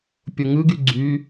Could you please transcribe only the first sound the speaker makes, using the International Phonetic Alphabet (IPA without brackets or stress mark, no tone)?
pʲ